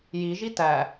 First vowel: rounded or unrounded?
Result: unrounded